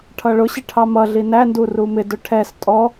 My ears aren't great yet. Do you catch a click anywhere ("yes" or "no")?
no